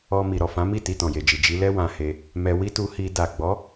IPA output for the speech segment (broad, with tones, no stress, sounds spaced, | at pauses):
ɔ˧ m i˨ ɾ ɔ˨ f ã˨˦ m i˦˨ t i˧ t ɔ̃˨ j e˨ d͡ʒ i˨ d͡ʒ i˨˦ l ɛ˦ w ã˧ h e˧ | m ɛ˧ w i˦ t u˧ h i˧ d a˨ ɡ͡b ɔ˨˦